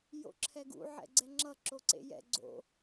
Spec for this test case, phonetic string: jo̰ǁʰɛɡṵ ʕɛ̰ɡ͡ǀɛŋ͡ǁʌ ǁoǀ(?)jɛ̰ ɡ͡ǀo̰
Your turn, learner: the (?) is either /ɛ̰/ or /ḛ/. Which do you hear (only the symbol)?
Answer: ḛ